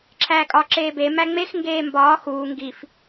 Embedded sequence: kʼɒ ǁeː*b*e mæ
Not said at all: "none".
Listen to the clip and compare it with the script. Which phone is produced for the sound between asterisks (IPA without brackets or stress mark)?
b